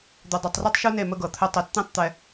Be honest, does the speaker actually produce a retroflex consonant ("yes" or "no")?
no